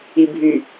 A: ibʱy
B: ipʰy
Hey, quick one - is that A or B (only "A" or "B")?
A